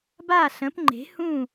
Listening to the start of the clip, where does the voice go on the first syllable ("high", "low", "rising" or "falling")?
falling